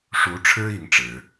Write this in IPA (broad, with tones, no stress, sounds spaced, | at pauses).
ʂ u˧˥ ʈ͡ʂʰ ɻ̩˥ i˧˥ ŋ ʈ͡ʂ ɻ̩˨˩˦